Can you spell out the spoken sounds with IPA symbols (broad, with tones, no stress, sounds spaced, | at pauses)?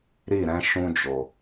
ɾ i˦˨ ɾ ɛ̃˧ ʃ ũ˧ d͡ʒ o˨